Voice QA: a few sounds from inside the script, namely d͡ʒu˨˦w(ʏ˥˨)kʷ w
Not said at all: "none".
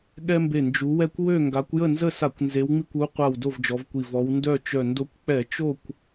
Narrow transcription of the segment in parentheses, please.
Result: ɛ˥˨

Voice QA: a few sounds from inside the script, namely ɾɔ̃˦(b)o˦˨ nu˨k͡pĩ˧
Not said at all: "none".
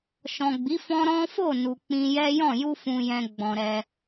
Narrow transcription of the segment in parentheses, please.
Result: f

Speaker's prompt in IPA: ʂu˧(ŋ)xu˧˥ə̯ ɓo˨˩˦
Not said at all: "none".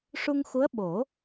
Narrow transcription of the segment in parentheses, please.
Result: ŋ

